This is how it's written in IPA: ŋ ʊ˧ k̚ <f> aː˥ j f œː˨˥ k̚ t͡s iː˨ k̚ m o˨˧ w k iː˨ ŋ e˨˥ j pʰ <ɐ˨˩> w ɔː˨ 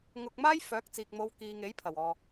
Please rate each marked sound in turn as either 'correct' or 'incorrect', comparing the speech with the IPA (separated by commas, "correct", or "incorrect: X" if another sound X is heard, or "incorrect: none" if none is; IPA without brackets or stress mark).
incorrect: m, correct